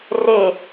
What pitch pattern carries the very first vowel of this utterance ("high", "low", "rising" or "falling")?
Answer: falling